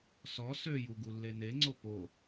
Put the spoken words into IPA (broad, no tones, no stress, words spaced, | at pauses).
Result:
sɔ søju ɡulːeneŋ͡ǀo po